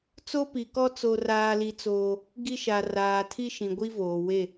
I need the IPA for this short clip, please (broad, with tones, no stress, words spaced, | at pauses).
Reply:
t͡so˦pi˨kɔ˦ t͡so˦raː˦li˦t͡soː˦ | ɡi˦ʃa˨ raː˨tʰi˦ ʃĩ˨ɡʷi˦voː˨we˦˨